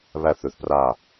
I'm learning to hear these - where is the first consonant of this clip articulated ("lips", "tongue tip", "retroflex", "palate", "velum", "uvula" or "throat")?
lips